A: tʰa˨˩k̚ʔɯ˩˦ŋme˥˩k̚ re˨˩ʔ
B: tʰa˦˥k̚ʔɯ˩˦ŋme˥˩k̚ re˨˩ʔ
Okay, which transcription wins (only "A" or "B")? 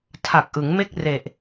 A